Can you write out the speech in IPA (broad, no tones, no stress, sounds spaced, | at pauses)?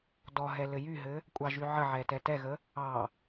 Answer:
d ɔ ɦ ɛ l ɘ j y ɦ ɘ | kʷʼ ɑ ʒ y ʕ ə ʕ ɛ t ɛ t ɛ ɣ ə | ɑ